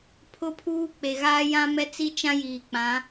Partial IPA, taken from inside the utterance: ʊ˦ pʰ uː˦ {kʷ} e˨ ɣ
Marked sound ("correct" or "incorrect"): incorrect